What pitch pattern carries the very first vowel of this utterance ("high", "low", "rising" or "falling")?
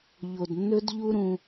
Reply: low